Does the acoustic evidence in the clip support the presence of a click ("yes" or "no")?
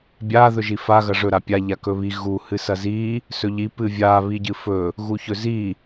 no